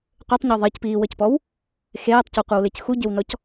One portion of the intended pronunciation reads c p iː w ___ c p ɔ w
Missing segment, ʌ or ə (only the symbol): ʌ